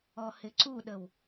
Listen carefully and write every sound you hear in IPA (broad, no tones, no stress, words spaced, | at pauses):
ɔhɪǀuɗəw